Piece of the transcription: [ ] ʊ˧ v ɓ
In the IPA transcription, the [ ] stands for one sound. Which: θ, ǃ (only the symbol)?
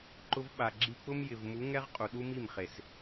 ǃ